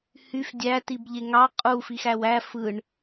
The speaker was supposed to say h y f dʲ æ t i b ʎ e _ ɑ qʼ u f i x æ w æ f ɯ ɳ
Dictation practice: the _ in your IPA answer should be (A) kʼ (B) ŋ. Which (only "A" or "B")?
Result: B